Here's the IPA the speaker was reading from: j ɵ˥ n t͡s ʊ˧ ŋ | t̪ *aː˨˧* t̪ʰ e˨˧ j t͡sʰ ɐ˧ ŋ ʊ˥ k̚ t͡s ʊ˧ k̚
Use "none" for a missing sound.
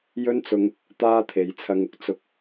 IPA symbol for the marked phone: aː˥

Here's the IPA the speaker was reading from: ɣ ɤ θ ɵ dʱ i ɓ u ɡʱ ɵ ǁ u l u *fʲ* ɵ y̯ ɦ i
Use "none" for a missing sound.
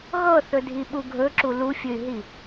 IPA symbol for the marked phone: fʲ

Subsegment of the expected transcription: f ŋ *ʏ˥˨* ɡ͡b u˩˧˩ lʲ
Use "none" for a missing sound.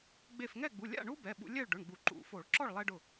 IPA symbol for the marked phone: ɛ˥˨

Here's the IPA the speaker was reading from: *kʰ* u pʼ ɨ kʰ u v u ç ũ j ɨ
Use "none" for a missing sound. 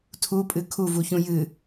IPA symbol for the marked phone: tʰ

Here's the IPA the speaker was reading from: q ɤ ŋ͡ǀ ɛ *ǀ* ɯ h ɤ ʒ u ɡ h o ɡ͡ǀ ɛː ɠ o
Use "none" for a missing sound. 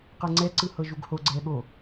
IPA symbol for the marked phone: ǀ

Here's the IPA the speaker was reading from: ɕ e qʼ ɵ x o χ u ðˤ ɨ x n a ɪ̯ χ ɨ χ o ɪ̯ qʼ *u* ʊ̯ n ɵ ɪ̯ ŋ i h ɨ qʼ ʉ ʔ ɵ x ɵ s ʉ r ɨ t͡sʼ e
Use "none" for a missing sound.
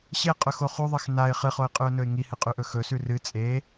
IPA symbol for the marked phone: ʉ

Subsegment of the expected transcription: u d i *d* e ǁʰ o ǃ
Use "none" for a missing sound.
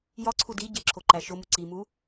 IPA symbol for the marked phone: ɟ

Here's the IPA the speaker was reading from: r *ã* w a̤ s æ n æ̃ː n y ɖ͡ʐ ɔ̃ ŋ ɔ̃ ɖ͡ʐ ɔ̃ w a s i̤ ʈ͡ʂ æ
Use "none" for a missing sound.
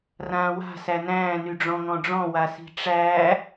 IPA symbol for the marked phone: ãː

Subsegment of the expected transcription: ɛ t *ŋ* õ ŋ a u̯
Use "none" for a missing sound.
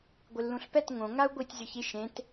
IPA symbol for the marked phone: ŋ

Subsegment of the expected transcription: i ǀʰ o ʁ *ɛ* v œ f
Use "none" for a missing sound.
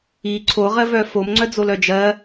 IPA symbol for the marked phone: ɜ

